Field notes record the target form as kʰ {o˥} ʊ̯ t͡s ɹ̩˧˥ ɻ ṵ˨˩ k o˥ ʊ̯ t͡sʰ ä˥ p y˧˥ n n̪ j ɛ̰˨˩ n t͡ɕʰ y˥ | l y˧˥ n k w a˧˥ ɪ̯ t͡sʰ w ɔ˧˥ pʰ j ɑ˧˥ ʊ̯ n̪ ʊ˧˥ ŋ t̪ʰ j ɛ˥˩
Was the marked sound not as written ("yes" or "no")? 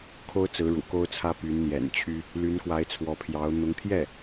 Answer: no